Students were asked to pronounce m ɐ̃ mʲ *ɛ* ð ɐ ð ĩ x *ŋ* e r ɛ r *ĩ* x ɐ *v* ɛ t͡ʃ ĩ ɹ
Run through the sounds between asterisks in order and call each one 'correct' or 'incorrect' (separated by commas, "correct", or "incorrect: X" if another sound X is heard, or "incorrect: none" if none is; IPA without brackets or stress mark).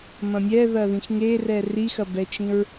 correct, correct, incorrect: i, incorrect: b